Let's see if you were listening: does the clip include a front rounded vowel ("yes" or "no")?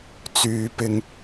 yes